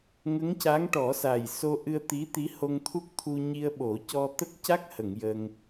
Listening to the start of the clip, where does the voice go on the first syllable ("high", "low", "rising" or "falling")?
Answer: rising